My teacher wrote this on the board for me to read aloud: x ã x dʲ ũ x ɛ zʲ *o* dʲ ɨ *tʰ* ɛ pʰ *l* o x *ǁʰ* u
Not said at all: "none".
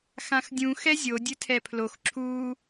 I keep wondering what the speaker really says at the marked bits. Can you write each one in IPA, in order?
o, tʰ, l, ǁʰ

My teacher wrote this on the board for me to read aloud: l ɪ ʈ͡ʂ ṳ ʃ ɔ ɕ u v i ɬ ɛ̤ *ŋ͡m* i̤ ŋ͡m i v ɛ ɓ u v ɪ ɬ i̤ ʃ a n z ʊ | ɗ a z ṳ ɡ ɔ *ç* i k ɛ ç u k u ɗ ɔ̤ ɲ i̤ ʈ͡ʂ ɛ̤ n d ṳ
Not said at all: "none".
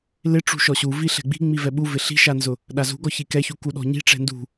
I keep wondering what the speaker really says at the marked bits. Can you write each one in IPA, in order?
ɡ͡b, ç

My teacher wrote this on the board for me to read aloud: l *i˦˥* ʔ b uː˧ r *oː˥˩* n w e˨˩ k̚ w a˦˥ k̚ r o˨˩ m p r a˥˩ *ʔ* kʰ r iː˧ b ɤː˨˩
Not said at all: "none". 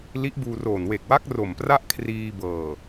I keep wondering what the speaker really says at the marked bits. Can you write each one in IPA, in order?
i˦˥, oː˨˩, ʔ

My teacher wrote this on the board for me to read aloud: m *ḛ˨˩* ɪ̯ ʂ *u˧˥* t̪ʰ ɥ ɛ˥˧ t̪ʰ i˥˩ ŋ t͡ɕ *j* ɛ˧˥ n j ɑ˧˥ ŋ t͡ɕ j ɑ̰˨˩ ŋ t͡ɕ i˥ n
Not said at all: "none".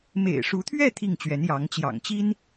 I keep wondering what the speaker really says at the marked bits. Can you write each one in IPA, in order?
ḛ˨˩, u˧˥, ɥ

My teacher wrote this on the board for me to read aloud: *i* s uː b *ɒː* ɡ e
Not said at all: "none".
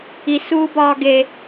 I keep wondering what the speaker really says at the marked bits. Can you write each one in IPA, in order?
i, ɒː

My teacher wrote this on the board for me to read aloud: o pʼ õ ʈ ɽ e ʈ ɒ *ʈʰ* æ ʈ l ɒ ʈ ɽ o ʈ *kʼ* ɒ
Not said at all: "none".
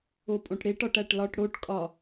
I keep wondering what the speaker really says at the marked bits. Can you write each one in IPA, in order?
ʈ, kʼ

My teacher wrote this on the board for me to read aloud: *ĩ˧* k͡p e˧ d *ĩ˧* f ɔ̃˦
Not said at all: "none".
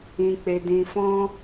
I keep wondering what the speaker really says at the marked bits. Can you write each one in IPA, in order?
ĩ˧, ĩ˧

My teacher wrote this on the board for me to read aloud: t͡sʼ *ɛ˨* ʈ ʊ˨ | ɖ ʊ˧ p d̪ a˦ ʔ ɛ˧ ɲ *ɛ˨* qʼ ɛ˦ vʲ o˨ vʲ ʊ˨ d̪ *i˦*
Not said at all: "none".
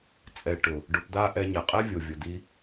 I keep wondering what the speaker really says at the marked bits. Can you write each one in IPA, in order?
ɛ˨, ɛ˨, i˧

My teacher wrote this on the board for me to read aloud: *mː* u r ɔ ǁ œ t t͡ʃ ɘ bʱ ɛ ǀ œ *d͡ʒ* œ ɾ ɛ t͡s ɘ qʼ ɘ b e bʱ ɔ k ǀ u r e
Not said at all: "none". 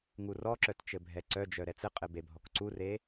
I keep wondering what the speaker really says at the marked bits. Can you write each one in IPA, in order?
ŋ, d͡ʒ

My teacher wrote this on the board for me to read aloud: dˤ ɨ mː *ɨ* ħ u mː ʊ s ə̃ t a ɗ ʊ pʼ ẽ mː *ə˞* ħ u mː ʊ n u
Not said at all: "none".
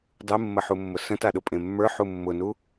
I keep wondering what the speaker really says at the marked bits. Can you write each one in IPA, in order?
ə, ə˞

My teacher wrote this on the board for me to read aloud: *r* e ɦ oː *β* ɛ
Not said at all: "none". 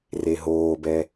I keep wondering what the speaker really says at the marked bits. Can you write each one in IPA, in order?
r, b

